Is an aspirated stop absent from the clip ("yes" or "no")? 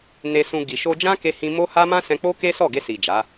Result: yes